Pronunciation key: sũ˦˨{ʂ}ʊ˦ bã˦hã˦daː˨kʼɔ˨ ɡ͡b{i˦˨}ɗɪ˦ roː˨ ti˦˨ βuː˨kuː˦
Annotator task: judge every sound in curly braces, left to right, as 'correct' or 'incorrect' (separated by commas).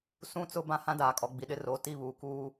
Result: incorrect, incorrect